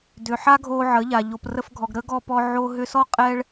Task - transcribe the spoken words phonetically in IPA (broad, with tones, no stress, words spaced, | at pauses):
dʏ˨ħa˦ɡʱoː˧ ʕəː˨˦ʎa˨ ʎo˨prə˧fɡʱɔ˨ɡ ɾəː˦ɡ ɔ˧pɔ˧ ʕo˧ ɦʏ˧sɔ˦ qʼɛ˦ɭ